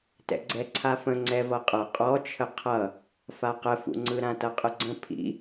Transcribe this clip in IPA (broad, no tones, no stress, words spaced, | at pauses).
tɛ̰ɡ͡ǀɛǀʰafə̃ ŋ͡ǀɛvʌqʼʌ qʼɔt͡ʃʰə qʰʌ | faqəfṵŋ͡ǀɯ ɾãtʌqʼəɡ͡ǀə̃ pʰḭ